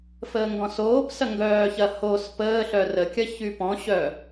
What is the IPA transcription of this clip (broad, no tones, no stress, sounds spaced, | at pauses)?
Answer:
f əː ŋ ɡ ɔ̃ s oː p s ɐ ŋ ɡ œː ç ɐ h o s p əː ɬ œ r ə kʲ ɐ ç y p ɔ̃ ɕ œ